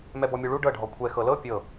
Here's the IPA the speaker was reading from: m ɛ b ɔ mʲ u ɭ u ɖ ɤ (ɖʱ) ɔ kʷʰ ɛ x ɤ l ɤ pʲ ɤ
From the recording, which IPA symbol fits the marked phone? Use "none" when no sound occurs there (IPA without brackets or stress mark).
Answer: ɖʱ